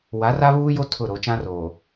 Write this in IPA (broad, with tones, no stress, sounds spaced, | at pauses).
w a˨˦ r a˦ β uː˦ j o˦ tʰ ʊ˦˨ ɾ o˨ t͡ʃ ã˦ r oː˨